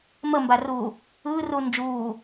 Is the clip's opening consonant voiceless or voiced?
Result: voiced